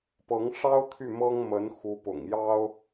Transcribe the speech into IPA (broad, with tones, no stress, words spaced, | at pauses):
pɤ˧˥ŋʂɑ˥ʊ̯ t̪ʰy˥˩mɤ˥ŋ mə˧˥n xu˧˥pʊ̰˨˩ŋjɑ˥ʊ̯